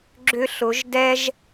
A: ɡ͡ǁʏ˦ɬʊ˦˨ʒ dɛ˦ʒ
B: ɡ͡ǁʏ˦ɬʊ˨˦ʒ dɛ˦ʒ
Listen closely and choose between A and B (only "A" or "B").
B